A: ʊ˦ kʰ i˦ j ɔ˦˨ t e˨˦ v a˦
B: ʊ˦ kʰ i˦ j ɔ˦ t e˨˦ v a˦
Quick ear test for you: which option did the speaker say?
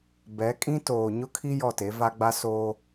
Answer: A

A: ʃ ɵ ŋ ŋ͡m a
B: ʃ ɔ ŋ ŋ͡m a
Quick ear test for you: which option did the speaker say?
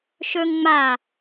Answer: A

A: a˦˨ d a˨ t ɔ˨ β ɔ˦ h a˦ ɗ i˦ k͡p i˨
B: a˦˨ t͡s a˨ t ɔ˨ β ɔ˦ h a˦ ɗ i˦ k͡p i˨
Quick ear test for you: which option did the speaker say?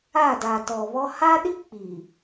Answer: A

